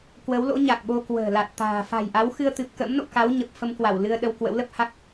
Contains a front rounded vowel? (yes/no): no